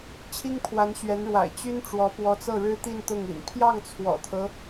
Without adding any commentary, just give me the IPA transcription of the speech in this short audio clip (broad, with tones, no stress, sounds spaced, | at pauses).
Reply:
t͡ɕʰ i˥ ŋ pʰ w a˧˥ n ɕ ɥ ɛ˧˥ n ɻ w a̰˨˩ ɪ̯ t͡ɕ y˥ n ʈ͡ʂ w ɔ˧˥ p w ɔ˧˥ t͡s ɤ˥˩ ɻ ɻ̩˥ t̪ i˥˧ n t̪ ʊ˥˩ ŋ ḭ˨˩ n pʰ j ɑ˥˩ ŋ t͡sʰ w ɔ̰˨˩ t̪ʰ ɤ˦